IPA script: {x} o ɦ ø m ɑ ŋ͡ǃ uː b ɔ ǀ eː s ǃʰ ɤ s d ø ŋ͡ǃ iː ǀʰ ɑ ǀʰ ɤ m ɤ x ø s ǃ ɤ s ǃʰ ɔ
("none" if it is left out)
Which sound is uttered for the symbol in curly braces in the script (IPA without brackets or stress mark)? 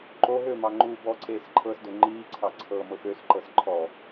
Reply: ǃ